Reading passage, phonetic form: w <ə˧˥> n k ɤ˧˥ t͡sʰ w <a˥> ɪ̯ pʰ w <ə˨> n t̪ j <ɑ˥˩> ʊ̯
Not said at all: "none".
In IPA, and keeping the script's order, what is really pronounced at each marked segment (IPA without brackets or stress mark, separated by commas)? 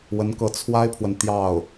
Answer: ə˧˥, a˥, ə˨, ɑ˥˩